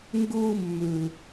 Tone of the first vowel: high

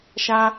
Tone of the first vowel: high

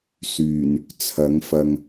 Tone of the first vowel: low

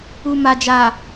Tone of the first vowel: low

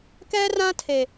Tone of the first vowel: high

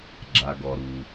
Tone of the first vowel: low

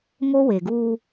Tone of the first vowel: high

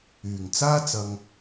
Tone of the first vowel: low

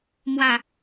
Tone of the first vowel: falling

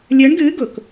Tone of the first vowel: rising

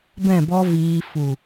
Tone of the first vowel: falling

